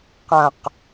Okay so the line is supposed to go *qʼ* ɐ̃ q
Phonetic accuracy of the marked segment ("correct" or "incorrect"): incorrect